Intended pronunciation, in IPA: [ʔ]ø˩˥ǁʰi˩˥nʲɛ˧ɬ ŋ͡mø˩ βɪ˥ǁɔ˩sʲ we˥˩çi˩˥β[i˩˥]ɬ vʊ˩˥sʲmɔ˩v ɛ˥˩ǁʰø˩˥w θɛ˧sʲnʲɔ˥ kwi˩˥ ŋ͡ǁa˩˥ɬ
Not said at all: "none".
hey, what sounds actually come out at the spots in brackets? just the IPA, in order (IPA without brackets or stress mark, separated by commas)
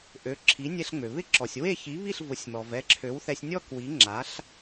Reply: ʔ, i˥˩